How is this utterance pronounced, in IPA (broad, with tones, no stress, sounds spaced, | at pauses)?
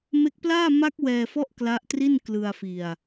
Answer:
m e˦˥ k̚ p l aː˥˩ m a˦˥ k̚ w ɛː˧ f ɔ˦˥ ʔ k l a˦˥ ʔ t r i˥˩ n k l ɯ˧ a̯ f i˧ a̯